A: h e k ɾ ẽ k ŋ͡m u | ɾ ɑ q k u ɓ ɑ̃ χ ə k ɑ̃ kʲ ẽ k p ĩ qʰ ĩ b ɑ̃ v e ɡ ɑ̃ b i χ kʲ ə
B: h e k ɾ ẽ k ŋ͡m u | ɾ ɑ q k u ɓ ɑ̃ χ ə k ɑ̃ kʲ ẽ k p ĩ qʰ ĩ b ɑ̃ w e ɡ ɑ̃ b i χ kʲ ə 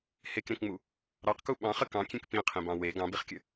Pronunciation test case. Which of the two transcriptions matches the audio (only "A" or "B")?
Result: B